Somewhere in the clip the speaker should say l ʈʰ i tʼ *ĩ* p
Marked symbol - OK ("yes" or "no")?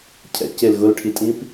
yes